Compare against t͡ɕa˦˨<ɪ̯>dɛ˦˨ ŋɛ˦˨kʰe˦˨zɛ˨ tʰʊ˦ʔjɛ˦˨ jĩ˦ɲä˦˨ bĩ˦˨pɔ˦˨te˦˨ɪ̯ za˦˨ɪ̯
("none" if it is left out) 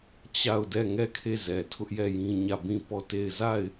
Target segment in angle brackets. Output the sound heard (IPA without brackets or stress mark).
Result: ʊ̯